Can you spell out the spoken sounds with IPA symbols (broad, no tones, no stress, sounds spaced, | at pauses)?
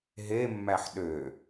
ɦ e mː æ ħ ɗ ø